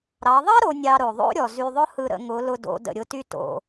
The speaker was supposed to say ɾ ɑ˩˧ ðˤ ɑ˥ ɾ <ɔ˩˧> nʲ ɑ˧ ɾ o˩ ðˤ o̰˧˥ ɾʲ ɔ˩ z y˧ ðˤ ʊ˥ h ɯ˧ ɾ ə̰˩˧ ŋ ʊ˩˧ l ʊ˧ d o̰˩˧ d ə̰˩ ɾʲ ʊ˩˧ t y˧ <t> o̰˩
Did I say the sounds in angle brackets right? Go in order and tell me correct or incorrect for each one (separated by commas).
incorrect, correct